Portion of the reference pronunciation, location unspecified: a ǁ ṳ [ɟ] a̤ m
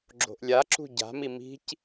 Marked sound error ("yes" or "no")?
no